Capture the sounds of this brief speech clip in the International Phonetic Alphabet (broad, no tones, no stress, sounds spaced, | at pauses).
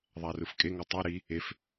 ðˤ æ r ɯ f kʼ e ŋ o tˤ o ɾ i | e f